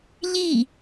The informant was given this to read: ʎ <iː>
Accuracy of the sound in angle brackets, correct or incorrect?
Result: incorrect